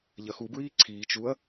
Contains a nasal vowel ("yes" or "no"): no